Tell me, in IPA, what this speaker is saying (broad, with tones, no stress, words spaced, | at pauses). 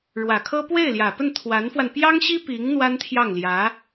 ɻwä˨˩kʰɤ˥ pwe˥˩ɪ̯ljä˨˩pə˥˩n t̪ʰwa˧˥nfwa˧n pjɑ˥ŋɕi˥ pi˧˥ŋ n̪wa˥nt̪ʰjɑ˥˩ŋljä˧˥